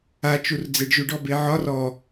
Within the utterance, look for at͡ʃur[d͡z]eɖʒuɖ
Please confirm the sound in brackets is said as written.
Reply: yes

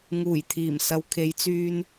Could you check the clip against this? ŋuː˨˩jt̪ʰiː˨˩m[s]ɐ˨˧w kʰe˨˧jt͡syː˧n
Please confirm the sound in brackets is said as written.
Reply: yes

